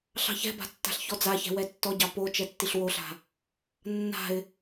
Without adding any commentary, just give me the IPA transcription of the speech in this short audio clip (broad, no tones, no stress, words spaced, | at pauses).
ɬɑ̤çɛ̤ba̤ tːa̤ɬçɔd͡zaçɛ̤ wɛtːɔɟɑ po t͡ʃɛtːiɬwoɬa̤ | nːa̤ɪ̯